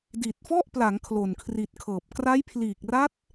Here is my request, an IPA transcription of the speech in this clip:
di˨˩t̚fɔ˥˩ʔpla˩˦ŋ kʰlo˨˩nkʰri˨˩t̚kʰɤː˨˩p̚ kra˦˥jpʰliː˨˩k̚ra˦˥t̚

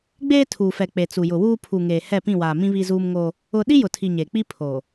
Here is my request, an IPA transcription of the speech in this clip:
ɡ͡beː˦tʰuː˨fɛ˨ k͡pe˨t͡su˨ jʊ˨wuː˦ pʰu˨ ŋeː˨ hɛ˦˨pĩ˦˨waː˨mĩ˦ βi˦zuː˦mŋo˦ | ʊ˦ ɗi˦jʊ˨tʰi˨ ɲeː˨k͡pi˦ pʰo˨

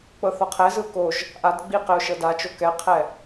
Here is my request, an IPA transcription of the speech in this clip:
k͡pɤθɔqʰɛzɯʊ̯ koʒ | ʔadɡ͡bi qeʊ̯ʃɤdat͡ʃo kɛqʰɛ

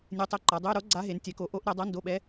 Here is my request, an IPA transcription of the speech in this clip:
nʲe˧˥tˤɛ˧˥˧ǃa˩˥ dˤɘ˧˥˧y̯ɾo˧˥ ɡ͡ǀa˧˥ɦe˩˥n tʲɛ˩˥ko˩˥ʔo˧˥ʔ ɾe˩˥dˤa˧˥˧ndo˧˥˧ɓɛ˧˥

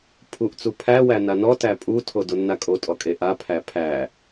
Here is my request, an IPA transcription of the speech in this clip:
pʰuʔt͡su pʰæwæ nanɔ tæpʼutʰo donːakʼotʼɔ kʼeʔa pʰæpʰæ

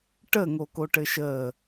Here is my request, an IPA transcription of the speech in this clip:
ʈəŋokoʈɘ ʃə

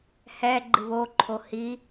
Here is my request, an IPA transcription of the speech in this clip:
hɛ ɡ͡ǃɨβo ǃʰohi

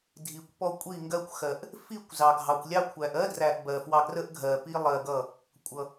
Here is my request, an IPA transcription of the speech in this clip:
dʱi˨kʷpɔ˧ kʷʼi˦˨ŋɡɜ˦kʷ xɜ˨ʔ | fi˦˨kʷ zɑ˧ɡʱɑ˧kʷ lʲɑ˧kʷʰæ˨ʔɜ˦ dræ˧ʔbɜ˨fwɑ˧ ɡrə˦ʔɡʱɜ˨ pi˦lˠɜ˧ɡʌ˦˨ | kʷʼʌ˨

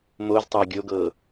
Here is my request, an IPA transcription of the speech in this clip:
moztˤɑ ɡʲoɡɤ

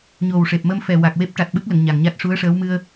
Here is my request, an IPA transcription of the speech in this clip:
ɲo˨˩wʂe˨˩p̚mə˧mfɛ˨˩ wa˨˩k̚ we˦˥p̚ʈa˨˩t̚ɓɨ˦˥k̚lə˨˩˨ŋ ɲa˨˩ŋɲa˦˥t̚ʂu˧˥ə̯ʂəː˧˥w mɨ˧ə̯

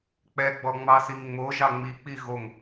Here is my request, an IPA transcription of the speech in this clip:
k͡pɛɡ͡bɔŋ͡mɑsiŋ ŋ͡moʒɑ ŋ͡mik͡pi ɣoŋ

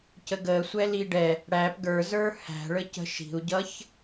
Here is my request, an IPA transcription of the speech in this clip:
cəɡəː sʷɛliɖɛ | ɽæp ɡə˞zə˞ hæ̤ɭə cə̤ʃi̤u̯ɟʌç

